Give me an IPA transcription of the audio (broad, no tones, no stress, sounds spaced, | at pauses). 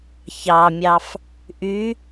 ç ɑ mʲ ɑ f | ʔ y